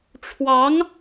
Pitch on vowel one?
rising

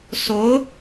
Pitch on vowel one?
rising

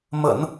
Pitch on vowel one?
low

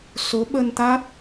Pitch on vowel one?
rising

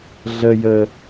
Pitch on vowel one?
low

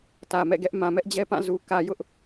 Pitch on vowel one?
low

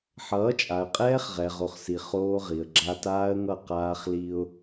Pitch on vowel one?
rising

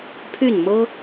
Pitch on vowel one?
falling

